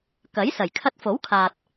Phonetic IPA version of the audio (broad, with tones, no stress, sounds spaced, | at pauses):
k ɐ˨˥ j s ɐ˨˩ j kʰ ɐ˧ t̚ f o˨˥ w kʰ aː˨ t̚